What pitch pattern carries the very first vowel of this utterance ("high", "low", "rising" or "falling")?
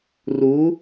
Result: rising